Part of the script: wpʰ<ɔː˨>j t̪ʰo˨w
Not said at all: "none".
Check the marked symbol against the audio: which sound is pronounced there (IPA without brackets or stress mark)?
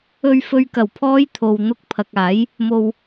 ɔː˨˧